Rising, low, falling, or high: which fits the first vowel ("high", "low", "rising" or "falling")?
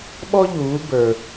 high